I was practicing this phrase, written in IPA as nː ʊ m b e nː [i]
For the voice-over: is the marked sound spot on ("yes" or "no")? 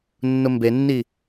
yes